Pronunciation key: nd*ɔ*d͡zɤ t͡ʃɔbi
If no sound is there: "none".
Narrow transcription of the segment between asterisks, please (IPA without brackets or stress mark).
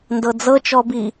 ɤ